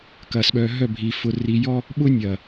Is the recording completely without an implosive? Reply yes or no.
no